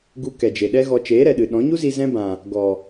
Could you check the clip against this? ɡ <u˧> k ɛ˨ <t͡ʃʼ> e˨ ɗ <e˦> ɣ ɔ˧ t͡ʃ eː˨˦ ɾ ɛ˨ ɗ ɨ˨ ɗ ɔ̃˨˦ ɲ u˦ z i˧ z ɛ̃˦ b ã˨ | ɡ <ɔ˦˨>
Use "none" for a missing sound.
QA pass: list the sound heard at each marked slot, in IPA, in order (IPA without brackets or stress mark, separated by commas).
u˧, d͡ʒ, ɛ˦, ɔ˨